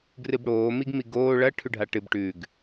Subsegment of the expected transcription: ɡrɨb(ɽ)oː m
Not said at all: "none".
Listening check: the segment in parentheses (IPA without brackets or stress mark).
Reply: ɽ